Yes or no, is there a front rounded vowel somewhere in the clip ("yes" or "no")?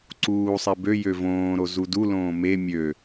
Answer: yes